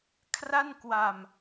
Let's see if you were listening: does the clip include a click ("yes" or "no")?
no